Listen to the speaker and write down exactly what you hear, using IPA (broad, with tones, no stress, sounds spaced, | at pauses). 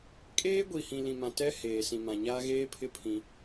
kʼ eː˦ ɡʷ i˨ h ĩ˨ l ĩ˨ m ã˨ t ɛ˦ h eː˨ s ĩ˨ m ã˨ ɲ aː˦ ɣ eː˦ pʰ ɪ˦ pʰ ĩ˦